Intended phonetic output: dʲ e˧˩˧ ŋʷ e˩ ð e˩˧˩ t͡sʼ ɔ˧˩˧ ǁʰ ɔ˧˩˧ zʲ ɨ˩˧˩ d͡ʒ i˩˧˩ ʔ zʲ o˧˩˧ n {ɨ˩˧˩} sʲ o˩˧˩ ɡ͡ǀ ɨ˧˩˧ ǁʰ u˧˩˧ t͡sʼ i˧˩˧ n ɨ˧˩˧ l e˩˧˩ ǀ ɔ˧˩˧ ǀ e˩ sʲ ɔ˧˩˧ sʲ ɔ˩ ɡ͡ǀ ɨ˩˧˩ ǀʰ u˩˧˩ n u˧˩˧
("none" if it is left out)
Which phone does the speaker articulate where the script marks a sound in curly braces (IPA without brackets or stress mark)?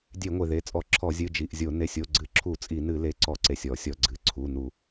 e˩˧˩